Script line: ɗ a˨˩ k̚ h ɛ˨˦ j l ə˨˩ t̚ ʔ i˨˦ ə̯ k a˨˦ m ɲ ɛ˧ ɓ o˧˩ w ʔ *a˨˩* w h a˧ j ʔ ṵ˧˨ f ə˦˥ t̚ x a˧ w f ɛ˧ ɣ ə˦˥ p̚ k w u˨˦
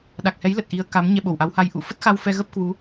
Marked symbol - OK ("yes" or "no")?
no